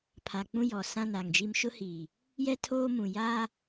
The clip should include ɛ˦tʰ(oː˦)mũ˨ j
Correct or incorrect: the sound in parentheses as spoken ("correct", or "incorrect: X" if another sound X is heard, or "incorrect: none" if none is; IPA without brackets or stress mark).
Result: correct